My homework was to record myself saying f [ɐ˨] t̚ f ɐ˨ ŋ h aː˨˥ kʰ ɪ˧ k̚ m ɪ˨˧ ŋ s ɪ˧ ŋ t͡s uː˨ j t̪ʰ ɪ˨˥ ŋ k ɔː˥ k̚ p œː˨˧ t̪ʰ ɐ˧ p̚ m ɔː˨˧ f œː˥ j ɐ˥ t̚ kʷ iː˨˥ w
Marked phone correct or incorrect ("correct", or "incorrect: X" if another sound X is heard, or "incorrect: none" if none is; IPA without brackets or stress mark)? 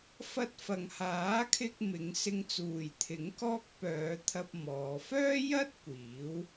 incorrect: ɐ˧